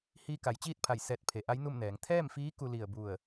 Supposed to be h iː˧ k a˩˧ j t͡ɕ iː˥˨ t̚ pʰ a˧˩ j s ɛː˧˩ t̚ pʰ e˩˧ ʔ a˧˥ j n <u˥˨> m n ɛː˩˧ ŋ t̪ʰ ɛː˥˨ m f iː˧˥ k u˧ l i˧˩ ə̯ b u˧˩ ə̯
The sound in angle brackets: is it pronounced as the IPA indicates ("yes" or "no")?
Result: yes